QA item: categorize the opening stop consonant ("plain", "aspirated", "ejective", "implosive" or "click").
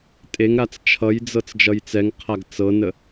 ejective